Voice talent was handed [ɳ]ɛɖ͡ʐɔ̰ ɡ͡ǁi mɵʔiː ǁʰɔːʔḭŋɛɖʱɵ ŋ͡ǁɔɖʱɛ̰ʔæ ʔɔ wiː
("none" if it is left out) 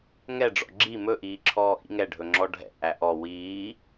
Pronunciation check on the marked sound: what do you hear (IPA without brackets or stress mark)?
ŋ